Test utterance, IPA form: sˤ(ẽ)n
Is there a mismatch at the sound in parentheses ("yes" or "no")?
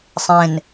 no